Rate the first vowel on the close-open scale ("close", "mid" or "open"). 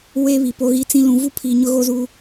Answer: mid